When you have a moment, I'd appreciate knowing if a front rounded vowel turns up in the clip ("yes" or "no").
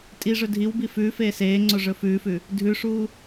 no